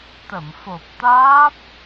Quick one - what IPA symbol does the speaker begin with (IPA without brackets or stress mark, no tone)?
t̪